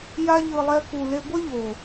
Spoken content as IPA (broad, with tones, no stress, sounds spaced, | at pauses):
j a˦ ʎ ɯ˧ lˠ ɛ˦ k u˧ l e˦ ɡʷ ʌ˦ ʎ o˨